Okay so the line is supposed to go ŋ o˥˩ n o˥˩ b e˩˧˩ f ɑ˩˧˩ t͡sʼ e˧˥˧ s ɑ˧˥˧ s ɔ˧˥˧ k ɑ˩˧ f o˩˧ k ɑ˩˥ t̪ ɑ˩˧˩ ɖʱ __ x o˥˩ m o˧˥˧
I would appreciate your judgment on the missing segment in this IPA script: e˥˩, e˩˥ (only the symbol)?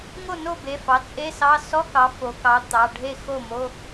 e˥˩